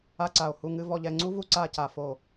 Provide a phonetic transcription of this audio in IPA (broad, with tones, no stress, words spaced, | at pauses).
a˥ǀa˧˩o̯hu˥˧ŋɨ˥ vɔ˧ʎɛ˧ŋ͡ǀu˥vu˥˧ ǀa˥˧ca˧˩ fo˧˩